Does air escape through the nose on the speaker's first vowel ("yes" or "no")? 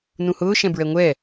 yes